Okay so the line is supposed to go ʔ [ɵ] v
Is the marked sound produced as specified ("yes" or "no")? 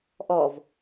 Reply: no